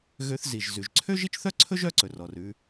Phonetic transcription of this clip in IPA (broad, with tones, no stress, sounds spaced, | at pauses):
ɣ ø˧ θ z i˩ ʒ z ʉ˩ ʒ ǀʰ ø˥ ʒ i˥ t͡ʃ θ œ˥ ǀʰ ɵ˥ ʒ œ˥ ǀ ɵ˩ r ɔ˩ r ʉ˧